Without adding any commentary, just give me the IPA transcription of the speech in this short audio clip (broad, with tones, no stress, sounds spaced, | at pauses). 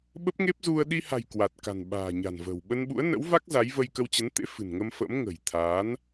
ɓ ə˦˥ p̚ ŋ e˦˥ p̚ z u˧ ə̯ ɗ i˧ h a̤˨˩ j k w a˨˩ t̚ k a̤˨˩ n ɓ a̤ː˨˩ ɲ a̤˨˩ n v ə̤ː˨˩ w ɓ ə˧ n ɓ ṵ˧˥ ə̯ n ə̰˧˥ w v a˦˥ k̚ z a˨˦ j v ə˧ j k ə˧ w t͡ɕ ə˨˦ n t̪ ḛ˧˥ f ɨ̤˨˩ n ŋ ə˧ m f ə̰˧˥ m ŋ ə̤˨˩ j t̪ʰ aː˨˦ n